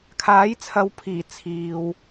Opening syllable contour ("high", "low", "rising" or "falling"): rising